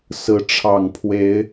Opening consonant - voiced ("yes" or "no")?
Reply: no